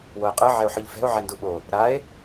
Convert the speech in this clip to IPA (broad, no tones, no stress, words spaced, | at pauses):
woe̯qʼɯ ʕɛo̯ħɯʎfɛ̤o̯ ʕɛnduɓo | ɾae̯